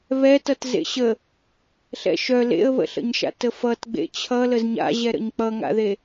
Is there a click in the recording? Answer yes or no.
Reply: no